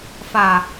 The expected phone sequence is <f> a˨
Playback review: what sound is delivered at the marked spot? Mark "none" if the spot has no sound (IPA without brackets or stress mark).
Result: f